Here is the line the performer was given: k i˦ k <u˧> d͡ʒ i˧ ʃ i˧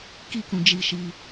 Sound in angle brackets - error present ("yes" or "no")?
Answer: yes